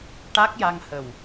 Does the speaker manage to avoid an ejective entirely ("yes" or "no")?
yes